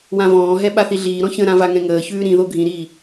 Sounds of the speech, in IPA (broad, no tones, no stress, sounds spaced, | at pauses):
w ã v ɔ̃ː ɦ ɛ ɓ a θ i ɮ iː ɾ ɔ̃ ç ə̃ ɾ ã v a ŋ ɛ̃ ŋ əː ç ʉː ɾ ĩ ð o ɡʱ ĩ ɾ iː